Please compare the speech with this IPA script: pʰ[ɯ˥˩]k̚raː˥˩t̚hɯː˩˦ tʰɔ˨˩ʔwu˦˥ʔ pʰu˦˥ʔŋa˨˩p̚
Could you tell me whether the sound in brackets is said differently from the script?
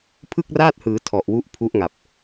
no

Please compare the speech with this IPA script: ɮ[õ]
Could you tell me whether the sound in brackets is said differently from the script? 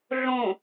no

